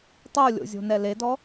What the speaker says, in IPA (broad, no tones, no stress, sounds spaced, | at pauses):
tˤ o lʲ o̰ zʲ o̤ n ɛ l e d ɔ